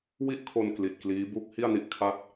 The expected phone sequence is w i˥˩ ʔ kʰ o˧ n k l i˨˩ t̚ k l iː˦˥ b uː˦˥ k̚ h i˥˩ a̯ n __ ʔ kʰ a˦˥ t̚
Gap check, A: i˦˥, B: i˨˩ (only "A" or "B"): A